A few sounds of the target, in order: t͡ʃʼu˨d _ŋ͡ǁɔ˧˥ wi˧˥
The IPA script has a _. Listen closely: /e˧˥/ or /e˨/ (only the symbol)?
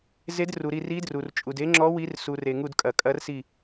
e˧˥